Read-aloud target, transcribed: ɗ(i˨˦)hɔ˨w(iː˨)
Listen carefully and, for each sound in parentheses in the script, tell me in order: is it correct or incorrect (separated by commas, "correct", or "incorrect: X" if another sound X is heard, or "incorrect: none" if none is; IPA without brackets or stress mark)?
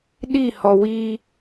incorrect: i˦˨, incorrect: iː˦